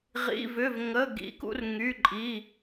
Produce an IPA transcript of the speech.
ʁḭ˩˧˩vʏ˩˧˩vŋə˩˧˩ ɡḭ˩˧kṵ˩˧r ŋy˩˧˩ǃʼi˩˧˩

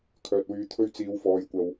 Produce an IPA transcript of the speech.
kʰœː˧t̚wyː˧t̪ʰɵ˥ɥ t͡siː˨˧wfɔː˨jkʷɐ˨w

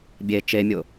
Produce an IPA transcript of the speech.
bʲe t͡ʃemʲʊ

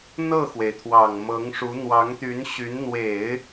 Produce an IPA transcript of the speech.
n̪ɤ˥˩xwe˩ɪ̯t̪ʰwɑ˨˩ŋ mɤ˧˥ŋʂu˧˥ n̪wɑ˧˥ŋt̪y˧˥nɕy˧˥n n̪we˨˩˦ɪ̯

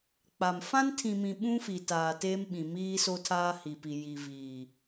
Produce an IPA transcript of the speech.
k͡pa˨m fã˦ntʰĩ˨mĩ˨ ɓũ˦fi˨ taː˨teː˦mɓĩ˨ miː˦so˦tʰaː˦ hi˨pi˨ ji˨viː˨

